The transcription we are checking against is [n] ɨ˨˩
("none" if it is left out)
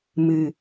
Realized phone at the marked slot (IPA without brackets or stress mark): m